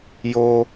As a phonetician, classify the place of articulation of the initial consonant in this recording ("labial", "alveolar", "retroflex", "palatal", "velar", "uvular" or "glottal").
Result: palatal